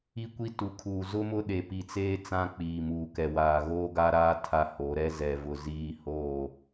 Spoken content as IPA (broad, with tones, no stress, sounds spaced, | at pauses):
i˦ kʷ i˦ t u˨ kʰ uː˨ z ʊ˦ m ʊ˦ ɗ e˨ p i˨ t͡s eː˦ t͡s ã˦ k͡p iː˨ m uː˨ k ɛ˨ w aː˨ ɣ oː˦ ɡ a˦ ɾ aː˦ tʰ a˦ h o˨˦ ɾ ɛ˦ z ɛ˨ v ʊ˨ z iː˦ h oː˦˨